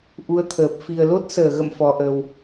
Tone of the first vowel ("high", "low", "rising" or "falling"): rising